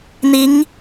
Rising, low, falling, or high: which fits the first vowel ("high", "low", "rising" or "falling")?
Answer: rising